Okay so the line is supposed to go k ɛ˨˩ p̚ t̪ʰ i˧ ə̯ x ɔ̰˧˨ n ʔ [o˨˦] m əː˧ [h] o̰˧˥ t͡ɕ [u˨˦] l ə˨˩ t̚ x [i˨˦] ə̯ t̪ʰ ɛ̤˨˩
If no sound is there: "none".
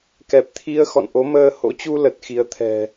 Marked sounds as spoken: o˨˦, h, u˧, i˨˦

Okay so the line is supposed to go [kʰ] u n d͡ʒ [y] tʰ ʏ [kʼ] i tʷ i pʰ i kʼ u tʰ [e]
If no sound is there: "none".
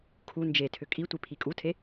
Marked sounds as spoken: kʰ, e, kʼ, e

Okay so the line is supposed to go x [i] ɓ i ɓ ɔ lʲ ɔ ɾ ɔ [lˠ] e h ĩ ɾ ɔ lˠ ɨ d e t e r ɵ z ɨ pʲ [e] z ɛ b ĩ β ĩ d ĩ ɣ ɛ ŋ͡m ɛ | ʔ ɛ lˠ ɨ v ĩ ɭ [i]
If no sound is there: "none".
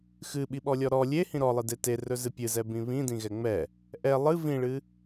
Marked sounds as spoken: ɨ, lʲ, ɨ, ɨ

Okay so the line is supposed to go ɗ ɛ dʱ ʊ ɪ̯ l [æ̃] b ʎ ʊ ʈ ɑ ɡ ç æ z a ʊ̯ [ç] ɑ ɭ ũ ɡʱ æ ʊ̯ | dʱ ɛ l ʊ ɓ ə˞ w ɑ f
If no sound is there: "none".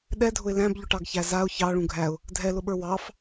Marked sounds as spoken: æ̃, ç

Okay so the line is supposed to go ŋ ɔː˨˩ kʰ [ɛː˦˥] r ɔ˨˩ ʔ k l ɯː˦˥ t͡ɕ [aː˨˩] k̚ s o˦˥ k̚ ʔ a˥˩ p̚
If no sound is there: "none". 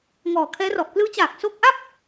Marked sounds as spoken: ɛː˦˥, aː˨˩

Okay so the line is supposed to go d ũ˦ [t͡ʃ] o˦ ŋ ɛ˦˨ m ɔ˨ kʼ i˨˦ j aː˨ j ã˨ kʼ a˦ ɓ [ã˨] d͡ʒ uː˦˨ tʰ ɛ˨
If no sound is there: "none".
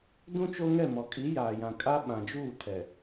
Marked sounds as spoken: t͡ʃ, ã˨

